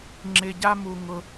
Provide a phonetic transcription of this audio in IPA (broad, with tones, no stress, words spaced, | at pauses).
ŋ͡ǁɪ˨ɟa˦mu˨ ŋʊ˦